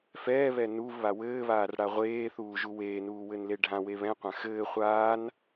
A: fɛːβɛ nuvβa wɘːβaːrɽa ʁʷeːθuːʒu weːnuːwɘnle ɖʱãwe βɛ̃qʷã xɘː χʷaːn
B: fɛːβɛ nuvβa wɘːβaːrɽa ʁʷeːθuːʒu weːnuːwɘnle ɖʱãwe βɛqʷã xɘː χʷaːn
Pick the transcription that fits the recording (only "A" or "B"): A